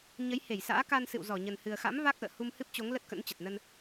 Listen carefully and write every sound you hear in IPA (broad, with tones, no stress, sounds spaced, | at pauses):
ɲ ə˨˦ j h e˧˩ j s a̰ː˧˥ k a˧ n s ɨ̰˧˨ w z ɔ˧˩ ɲ ə˨˩ n h ɨ˨˩ ə̯ x a̰˧˥ m v a˦˥ k̚ ʔ ə̰ː˧˨ h u˧ m h ɨ˦˥ p̚ t͡ɕ o˨˦ ŋ l ə˦˥ t̚ k ə̰˧˥ n t͡ɕ ə˨˩ t̚ n ə˧ n